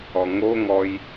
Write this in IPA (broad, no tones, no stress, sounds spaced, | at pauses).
ɔ ŋ o ŋ ɔ j